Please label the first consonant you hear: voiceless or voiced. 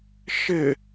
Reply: voiceless